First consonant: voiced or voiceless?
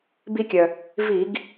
voiced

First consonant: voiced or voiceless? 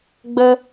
voiced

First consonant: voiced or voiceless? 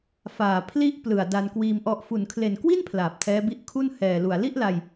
voiceless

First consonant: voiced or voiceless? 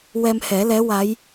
voiced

